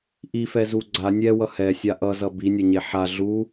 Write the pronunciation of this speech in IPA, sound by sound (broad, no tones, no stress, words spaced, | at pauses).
ʔifɛzu ɡ͡ǀa nʲɛwʌ hɛsʲa ʔʌzʌ binʲʌɲe ħa ɮu